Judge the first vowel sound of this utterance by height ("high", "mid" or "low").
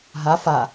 low